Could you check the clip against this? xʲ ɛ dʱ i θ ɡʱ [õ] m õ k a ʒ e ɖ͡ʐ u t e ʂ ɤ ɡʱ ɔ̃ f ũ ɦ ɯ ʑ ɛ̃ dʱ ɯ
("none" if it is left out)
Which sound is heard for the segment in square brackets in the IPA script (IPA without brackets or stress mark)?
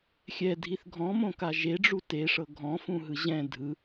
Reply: ɔ̃